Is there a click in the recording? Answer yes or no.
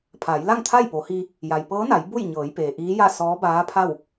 no